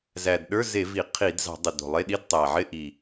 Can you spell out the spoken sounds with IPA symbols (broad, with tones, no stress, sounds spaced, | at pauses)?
z æ˨˩ d ɗ ə˞˧˥˧ z e˧˩˧ v i˧˩˧ qʰ i˧˩˧ d z ɑ̤˧˩˧ dˤ ɪ˨˩ d o̤˨˩ lˠ e˧˥˧ ɗ i˧˥˧ d tˤ æ˨˩ ʕ ɪ˧˥˧ ʔ i˨˩